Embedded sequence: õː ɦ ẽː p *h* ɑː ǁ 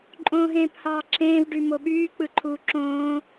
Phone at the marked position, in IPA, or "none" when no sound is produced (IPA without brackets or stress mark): h